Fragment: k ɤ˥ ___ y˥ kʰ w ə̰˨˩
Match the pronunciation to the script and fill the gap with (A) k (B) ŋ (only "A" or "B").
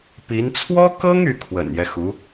B